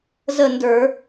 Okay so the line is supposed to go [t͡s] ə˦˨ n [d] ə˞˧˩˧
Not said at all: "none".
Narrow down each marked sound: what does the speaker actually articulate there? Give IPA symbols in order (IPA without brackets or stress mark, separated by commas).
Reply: z, d